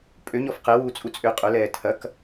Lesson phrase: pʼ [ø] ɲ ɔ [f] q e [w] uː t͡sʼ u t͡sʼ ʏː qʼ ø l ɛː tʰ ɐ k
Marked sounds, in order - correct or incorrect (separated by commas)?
correct, correct, correct